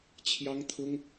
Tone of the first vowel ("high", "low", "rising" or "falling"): high